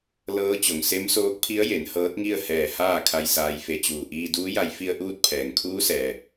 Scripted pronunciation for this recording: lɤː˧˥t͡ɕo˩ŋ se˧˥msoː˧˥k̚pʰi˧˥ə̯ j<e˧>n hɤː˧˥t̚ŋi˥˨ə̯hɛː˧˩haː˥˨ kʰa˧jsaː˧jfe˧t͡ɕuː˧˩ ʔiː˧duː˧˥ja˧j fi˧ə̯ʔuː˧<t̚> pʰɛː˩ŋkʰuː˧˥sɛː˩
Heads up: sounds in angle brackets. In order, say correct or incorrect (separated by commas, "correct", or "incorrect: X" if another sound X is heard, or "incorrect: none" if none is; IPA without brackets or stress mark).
incorrect: e˩˧, correct